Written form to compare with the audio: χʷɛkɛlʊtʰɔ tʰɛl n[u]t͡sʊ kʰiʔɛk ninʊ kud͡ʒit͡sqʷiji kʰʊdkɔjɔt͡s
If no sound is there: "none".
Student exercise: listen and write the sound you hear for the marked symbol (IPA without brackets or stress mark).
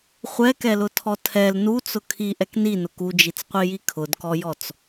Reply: u